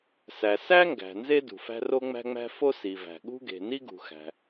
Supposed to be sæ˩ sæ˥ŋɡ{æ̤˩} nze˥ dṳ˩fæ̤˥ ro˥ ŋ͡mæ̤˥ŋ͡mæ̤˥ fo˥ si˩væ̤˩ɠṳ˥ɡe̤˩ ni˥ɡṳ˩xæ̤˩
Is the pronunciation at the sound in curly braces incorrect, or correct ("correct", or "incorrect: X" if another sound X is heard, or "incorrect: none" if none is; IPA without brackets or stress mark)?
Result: correct